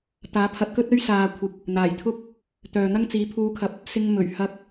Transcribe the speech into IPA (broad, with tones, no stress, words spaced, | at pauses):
t̪aː˨˥pʰɐ˨˥t̚kɵ˥t̚ɵ˥ɥ saː˨kʷʰɪ˨k̚ | n̪aː˨˩jt̪ʰʊ˥k̚ | t̪œː˨n̪ɐ˥ŋ t͡siː˨˥pʰuː˧kʰɐ˧p̚ | sɪ˧ŋ mɵ˨˩ɥhɐ˧k̚